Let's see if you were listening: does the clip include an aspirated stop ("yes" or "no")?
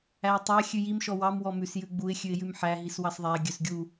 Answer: no